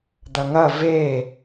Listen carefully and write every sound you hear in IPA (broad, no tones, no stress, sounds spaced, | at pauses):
d̪ ɐ ŋ ɐ v e